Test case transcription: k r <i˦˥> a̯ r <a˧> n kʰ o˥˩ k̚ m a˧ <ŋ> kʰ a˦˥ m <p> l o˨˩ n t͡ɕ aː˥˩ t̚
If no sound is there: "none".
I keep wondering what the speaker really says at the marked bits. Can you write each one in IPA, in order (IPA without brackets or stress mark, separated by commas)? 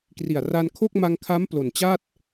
i˨˩, aː˧, ŋ, p